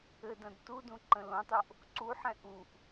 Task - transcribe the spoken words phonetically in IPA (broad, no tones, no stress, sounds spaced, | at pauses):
ɘ d ɐ̃ d t u d ũ ǃ ə̃ l õ tˤ o ʔ | ǀ u ħ ɛ̃ ʔ u ʔ